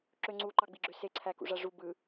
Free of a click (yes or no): no